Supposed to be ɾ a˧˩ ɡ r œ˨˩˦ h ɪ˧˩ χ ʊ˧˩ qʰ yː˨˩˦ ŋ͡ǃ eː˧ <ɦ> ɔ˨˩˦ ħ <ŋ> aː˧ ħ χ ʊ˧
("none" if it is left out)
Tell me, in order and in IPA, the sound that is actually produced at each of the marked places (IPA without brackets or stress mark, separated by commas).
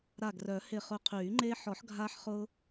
ħ, ɡʱ